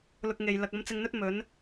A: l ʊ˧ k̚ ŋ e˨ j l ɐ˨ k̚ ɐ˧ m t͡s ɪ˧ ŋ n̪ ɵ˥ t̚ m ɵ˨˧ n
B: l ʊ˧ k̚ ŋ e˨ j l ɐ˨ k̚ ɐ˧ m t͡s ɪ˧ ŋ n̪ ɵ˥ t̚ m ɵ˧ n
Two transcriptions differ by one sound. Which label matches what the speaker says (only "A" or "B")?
A